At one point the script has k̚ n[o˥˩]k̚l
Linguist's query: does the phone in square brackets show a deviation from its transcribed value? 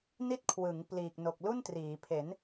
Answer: yes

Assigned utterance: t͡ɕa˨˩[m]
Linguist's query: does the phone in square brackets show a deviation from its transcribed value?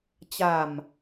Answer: no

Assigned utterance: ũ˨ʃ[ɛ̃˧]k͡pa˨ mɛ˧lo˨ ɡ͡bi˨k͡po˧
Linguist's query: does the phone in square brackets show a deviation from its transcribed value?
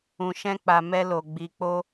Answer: no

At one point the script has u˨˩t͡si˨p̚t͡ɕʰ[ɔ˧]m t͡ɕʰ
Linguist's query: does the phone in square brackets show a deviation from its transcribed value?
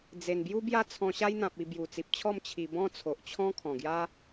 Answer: yes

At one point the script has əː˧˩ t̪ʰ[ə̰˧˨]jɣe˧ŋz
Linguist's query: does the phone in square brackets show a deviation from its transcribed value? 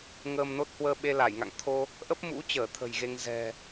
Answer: yes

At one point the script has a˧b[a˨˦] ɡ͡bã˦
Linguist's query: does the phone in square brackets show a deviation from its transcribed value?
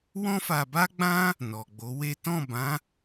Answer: yes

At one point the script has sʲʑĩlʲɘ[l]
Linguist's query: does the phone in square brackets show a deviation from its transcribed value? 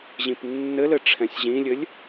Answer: yes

